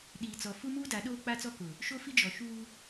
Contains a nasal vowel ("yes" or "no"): no